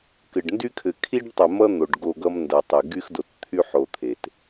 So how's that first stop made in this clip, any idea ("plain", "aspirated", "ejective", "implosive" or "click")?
plain